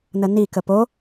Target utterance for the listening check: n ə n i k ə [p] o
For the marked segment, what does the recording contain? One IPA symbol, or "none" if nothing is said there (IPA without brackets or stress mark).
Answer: p